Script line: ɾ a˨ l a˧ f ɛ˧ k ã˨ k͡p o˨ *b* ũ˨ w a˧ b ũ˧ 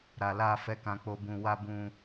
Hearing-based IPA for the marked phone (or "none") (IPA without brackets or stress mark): b